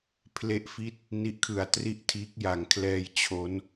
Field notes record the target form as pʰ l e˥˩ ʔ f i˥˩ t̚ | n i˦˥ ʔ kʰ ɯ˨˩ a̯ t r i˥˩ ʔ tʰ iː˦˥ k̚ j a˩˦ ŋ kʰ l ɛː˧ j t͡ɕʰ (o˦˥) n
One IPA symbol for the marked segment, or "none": o˦˥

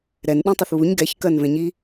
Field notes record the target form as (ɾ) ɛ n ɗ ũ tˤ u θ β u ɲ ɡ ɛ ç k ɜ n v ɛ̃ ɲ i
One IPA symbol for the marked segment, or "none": ɾ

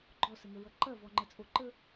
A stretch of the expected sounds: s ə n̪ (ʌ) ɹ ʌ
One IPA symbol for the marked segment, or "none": ə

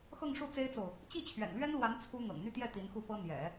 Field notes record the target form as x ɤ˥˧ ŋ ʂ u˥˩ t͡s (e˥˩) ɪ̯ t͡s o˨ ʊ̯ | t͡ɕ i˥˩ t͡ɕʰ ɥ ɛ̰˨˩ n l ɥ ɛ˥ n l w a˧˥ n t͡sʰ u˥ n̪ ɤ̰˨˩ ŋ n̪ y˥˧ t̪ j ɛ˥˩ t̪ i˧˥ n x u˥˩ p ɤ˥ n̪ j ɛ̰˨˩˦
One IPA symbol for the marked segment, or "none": e˥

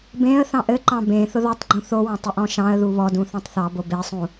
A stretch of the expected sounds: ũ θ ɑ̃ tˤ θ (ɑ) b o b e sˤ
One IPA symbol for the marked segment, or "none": ɑ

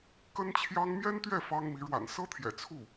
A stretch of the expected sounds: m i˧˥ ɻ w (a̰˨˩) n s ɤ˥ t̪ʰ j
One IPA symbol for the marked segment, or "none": a̰˨˩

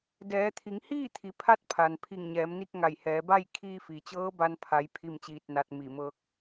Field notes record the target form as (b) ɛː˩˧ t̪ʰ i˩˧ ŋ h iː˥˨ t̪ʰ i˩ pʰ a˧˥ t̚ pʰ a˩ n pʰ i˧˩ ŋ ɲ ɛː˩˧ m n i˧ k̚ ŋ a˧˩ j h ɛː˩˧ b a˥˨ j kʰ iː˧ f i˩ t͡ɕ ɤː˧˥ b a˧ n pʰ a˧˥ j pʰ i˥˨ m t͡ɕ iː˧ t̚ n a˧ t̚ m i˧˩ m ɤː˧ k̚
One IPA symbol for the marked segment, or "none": d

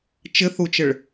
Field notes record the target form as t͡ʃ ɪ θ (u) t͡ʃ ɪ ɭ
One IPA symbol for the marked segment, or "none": u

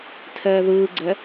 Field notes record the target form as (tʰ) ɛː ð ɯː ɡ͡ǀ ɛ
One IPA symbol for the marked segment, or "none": tʰ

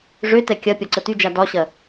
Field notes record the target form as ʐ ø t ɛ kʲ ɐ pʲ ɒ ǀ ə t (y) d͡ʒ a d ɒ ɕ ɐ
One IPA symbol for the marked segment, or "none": y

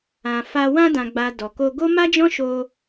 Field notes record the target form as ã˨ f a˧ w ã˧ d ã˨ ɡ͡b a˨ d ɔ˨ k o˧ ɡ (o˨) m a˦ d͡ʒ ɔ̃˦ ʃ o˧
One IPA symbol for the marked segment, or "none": o˦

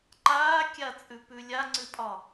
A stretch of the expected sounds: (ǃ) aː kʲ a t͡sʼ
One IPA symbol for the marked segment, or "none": ǃ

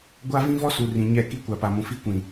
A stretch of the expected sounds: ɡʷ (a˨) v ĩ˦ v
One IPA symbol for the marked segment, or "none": a˦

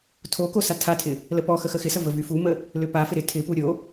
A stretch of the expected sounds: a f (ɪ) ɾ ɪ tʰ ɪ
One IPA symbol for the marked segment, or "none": ɪ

